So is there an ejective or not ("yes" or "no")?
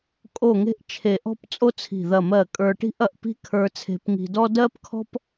yes